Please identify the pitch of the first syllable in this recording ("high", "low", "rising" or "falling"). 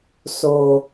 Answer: low